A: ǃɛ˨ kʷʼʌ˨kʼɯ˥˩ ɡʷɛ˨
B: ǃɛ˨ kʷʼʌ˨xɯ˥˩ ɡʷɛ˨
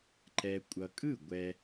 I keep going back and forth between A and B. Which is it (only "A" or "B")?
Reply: A